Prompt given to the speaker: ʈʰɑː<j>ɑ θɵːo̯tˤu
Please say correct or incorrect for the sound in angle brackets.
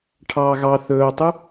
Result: incorrect